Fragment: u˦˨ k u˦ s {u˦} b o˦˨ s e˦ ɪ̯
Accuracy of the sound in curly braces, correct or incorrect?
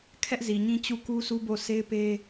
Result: correct